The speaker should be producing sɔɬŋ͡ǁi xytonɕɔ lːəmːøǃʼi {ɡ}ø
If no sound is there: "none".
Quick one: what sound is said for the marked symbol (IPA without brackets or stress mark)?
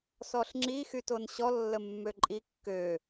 kː